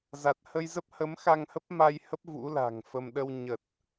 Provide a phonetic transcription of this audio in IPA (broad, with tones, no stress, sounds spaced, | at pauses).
z a˨˩ t̚ h ə˧ j z ə˦˥ p̚ h ə˨˦ m x a˧ ŋ h ə˦˥ p̚ m a˧ j h ə˦˥ p̚ v ṵ˧˥ l a̤˨˩ ŋ f ə˧ m ɗ ə˧ w ɲ ə˨˩ t̚